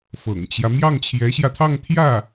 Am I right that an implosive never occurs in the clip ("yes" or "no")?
yes